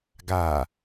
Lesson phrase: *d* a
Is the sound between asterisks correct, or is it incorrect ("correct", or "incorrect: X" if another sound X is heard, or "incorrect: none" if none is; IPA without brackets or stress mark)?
incorrect: ɡ